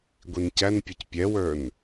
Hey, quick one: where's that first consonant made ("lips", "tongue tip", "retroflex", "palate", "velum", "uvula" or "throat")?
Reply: velum